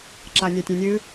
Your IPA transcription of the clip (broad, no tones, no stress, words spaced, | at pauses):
ǁanʲatʲẽnʲɨ